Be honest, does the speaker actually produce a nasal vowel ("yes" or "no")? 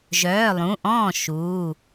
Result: yes